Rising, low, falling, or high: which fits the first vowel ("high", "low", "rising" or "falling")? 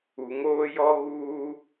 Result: low